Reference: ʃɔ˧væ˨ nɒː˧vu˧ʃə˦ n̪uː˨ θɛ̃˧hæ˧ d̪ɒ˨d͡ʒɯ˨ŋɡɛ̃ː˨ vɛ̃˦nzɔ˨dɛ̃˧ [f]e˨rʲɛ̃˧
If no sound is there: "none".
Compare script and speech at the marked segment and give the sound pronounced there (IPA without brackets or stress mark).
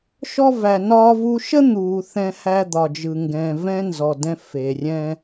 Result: f